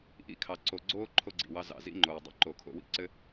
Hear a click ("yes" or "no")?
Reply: yes